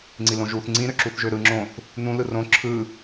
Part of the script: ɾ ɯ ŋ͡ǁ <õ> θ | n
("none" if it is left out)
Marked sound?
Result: õ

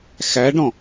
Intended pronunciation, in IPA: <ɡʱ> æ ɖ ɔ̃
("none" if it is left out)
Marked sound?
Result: x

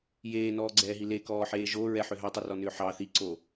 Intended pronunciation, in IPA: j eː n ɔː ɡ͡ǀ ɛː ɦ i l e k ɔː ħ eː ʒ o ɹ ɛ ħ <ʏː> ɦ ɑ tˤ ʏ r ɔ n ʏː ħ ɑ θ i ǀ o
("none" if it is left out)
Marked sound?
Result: ʏ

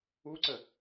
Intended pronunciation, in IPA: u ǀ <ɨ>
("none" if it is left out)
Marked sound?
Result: ə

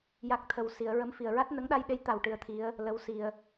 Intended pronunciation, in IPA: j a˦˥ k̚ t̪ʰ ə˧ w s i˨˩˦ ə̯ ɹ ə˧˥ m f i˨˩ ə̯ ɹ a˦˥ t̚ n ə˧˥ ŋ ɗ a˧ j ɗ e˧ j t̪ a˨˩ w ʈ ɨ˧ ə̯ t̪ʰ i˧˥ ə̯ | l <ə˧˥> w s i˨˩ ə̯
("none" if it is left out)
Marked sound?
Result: ə˧˥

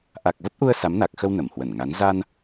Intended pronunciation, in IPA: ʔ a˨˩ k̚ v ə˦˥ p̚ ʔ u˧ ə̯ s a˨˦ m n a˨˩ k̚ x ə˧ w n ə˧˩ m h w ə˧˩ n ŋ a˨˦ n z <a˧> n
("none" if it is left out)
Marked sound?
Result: a˧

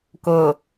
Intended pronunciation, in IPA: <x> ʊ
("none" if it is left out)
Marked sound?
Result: k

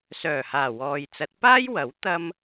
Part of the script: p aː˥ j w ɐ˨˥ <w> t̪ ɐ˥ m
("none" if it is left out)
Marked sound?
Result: w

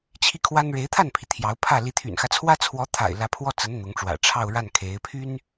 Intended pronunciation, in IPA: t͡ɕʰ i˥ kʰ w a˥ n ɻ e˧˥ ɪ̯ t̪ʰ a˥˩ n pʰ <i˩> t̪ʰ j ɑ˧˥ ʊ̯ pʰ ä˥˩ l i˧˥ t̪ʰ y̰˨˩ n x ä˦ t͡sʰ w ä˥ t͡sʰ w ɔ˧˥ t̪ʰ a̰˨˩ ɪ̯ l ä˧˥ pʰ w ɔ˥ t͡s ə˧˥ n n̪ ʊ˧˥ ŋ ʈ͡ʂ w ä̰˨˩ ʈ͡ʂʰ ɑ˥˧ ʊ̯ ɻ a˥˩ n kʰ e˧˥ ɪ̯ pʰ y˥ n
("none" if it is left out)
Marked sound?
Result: i˩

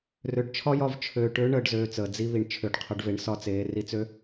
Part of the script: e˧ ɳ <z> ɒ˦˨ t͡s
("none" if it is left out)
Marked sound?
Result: s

